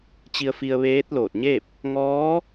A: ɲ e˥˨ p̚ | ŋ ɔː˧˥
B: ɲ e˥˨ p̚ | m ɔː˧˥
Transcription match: A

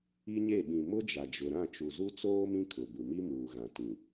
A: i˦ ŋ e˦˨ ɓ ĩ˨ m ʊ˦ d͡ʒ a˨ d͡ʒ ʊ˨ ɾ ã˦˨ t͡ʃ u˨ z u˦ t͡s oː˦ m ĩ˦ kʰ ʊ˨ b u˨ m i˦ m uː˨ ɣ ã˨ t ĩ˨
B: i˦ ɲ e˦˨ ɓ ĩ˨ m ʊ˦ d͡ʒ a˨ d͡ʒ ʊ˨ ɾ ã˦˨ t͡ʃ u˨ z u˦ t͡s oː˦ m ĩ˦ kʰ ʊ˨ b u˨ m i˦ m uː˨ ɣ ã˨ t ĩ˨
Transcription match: B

